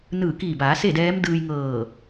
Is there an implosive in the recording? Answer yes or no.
no